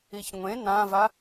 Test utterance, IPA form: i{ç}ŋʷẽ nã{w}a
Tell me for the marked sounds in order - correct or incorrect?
correct, incorrect: v

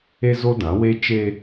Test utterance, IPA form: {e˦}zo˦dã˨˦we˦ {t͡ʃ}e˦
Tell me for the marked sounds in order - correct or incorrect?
correct, correct

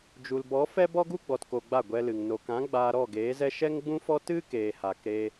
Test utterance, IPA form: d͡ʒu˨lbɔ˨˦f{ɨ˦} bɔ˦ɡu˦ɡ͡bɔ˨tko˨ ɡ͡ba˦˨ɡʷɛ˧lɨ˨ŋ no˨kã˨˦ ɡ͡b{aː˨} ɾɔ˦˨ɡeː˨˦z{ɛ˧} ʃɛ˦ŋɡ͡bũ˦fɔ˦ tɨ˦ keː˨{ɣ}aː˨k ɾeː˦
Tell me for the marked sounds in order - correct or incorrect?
incorrect: ɛ˦, incorrect: aː˧, incorrect: ɛ˦, incorrect: h

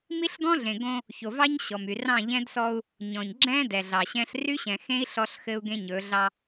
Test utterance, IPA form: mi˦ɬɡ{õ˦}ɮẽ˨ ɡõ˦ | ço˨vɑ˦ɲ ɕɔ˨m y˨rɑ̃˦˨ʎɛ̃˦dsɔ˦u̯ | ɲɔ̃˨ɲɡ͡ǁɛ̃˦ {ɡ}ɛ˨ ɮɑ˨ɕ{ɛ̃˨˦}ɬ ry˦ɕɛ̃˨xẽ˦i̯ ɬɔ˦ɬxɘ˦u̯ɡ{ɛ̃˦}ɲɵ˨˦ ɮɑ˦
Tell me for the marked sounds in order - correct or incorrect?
incorrect: ɔ̃˦, incorrect: d, incorrect: ɛ̃˦, incorrect: ẽ˦

